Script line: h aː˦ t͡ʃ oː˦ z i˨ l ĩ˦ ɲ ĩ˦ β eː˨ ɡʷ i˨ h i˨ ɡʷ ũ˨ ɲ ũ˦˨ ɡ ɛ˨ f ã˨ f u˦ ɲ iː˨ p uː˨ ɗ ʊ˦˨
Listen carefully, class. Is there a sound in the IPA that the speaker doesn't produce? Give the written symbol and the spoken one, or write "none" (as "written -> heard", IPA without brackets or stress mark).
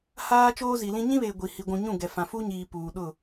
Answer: none